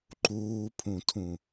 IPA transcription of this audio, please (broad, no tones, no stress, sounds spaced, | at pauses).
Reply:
ǃ uː pʰ ũ tʰ ũ